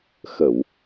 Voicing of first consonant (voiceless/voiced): voiceless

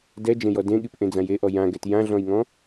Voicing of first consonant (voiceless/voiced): voiced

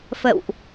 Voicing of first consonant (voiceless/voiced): voiceless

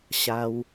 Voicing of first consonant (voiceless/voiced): voiceless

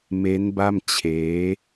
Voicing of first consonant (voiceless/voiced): voiced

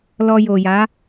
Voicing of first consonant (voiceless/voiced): voiced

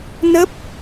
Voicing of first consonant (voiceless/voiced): voiced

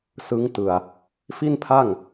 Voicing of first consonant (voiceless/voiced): voiceless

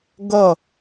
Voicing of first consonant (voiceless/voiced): voiced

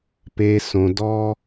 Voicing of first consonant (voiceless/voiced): voiceless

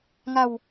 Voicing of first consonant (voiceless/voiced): voiced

